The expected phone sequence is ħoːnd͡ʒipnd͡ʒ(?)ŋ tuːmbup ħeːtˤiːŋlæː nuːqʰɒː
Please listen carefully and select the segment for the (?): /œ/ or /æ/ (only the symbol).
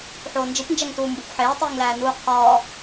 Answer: æ